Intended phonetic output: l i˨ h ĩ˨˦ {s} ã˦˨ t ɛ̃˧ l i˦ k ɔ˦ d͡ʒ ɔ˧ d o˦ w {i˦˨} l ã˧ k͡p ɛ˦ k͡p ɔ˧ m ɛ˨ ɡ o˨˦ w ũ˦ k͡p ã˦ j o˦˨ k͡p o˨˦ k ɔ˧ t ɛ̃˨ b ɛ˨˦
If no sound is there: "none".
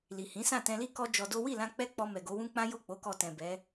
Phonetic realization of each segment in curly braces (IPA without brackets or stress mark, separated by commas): s, i˦˨